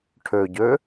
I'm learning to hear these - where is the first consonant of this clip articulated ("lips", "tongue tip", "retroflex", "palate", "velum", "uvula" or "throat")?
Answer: retroflex